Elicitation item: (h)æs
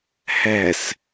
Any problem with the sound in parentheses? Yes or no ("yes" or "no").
no